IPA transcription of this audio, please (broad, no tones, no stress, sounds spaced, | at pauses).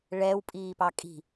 ɭ ɛ w pʼ iː p ɑ kʼ i̤